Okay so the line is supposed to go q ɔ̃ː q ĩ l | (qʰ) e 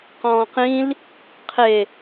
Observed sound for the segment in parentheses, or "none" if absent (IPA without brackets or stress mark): qʰ